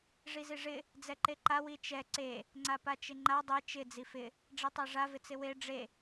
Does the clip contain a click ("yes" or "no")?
yes